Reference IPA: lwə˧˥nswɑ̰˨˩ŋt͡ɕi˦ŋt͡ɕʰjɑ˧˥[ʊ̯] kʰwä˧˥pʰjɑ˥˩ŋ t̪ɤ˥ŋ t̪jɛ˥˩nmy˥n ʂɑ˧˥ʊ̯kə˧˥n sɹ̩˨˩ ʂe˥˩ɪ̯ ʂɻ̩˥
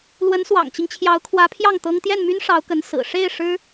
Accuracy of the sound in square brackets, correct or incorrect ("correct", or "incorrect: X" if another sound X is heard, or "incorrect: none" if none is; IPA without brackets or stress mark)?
correct